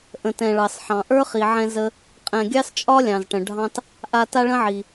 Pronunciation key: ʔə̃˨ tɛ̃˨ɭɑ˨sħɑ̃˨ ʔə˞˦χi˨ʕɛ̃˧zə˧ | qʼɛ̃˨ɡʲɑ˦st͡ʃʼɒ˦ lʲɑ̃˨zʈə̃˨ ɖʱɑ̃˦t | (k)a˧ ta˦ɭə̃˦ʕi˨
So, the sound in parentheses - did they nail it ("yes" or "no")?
no